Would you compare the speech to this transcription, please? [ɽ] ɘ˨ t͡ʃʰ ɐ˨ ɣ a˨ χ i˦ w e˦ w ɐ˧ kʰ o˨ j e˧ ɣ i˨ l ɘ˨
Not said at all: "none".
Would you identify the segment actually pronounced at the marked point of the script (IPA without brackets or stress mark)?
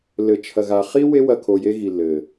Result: l